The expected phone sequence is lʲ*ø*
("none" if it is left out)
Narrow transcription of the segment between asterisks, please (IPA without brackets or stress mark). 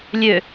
ø